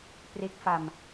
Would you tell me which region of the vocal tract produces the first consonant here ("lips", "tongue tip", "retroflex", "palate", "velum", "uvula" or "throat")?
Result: lips